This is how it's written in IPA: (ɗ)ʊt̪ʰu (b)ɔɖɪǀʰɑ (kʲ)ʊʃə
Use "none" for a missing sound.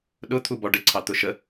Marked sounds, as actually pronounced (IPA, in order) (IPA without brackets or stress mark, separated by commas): ɗ, b, t̪